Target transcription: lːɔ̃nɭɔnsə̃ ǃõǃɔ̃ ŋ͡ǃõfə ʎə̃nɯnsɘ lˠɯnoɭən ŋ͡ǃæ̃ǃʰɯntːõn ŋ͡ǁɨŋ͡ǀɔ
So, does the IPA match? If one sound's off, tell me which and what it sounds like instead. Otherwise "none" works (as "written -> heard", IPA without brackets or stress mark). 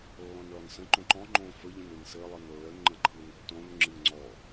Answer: æ̃ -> ə̃